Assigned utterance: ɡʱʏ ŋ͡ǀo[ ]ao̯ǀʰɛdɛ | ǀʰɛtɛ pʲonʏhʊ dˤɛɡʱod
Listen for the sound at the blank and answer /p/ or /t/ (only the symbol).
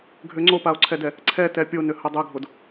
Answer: p